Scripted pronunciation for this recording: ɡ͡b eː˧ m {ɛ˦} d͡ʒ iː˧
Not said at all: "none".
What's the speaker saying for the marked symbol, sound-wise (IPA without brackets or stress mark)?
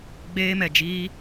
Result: ɛ˨